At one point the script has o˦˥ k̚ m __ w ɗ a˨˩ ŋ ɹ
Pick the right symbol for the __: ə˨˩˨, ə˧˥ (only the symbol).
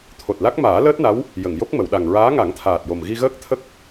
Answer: ə˨˩˨